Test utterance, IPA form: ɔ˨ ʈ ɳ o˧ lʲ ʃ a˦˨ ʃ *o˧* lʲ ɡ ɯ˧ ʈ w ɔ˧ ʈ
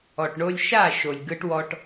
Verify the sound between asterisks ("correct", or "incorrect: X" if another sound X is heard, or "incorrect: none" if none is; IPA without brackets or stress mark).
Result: incorrect: o˨